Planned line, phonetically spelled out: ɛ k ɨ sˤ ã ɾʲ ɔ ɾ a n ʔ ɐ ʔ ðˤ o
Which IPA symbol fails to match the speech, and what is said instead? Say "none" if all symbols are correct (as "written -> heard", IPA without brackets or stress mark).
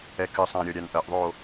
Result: ɾ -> ɾʲ